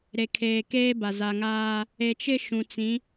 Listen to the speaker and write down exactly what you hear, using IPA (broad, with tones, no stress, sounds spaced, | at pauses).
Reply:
ɾ e˨ kʰ eː˨ k eː˦ b a˨ z a˨ ŋ aː˦ | e˨ t͡ʃ ɪ˦ ʃ ũ˨ t͡s ĩ˨˦